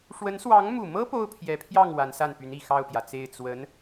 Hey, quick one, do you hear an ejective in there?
no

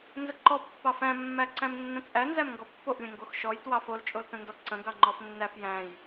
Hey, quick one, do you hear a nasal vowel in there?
yes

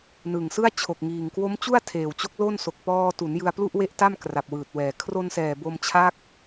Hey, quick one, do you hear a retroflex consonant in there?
no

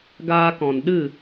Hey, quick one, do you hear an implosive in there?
yes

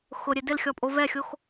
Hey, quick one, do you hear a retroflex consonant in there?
no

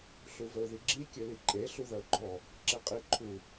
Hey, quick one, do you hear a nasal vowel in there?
no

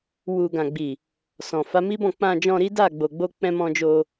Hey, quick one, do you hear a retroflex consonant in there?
no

